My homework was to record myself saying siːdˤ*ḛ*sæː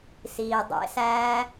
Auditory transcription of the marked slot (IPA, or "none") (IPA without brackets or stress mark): ḛ